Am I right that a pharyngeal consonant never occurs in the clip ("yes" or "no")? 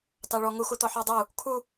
no